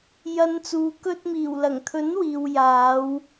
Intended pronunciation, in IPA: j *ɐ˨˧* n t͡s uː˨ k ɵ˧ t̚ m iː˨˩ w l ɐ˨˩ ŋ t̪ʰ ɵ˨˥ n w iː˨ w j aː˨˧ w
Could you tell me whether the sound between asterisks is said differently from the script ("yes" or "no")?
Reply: no